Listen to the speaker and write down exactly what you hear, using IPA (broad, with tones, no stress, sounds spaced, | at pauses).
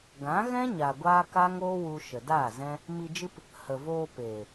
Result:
ɡ ã˨˦ ɣ ɛ̃˦ ɲ a˨ ɡʷ aː˦ k a˦ ŋ oː˦ w u˧ ʃ ə˨ d aː˦˨ z ɛ̃˦ | m i˧ d͡ʒ ɨ˦ p | h ə˨ v oː˧ p eː˨